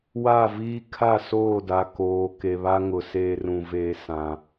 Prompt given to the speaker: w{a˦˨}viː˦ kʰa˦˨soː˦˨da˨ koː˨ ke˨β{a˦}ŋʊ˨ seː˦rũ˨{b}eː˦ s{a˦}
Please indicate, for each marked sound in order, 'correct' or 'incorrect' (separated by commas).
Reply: correct, correct, incorrect, incorrect